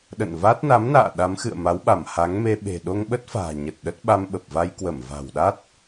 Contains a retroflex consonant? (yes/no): no